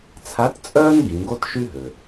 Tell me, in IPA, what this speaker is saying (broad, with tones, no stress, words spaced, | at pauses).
t͡sʰa˧˥tt͡sʼœː˥n ɡĩ˩˧ɡo˥tʃy˥ɦø˩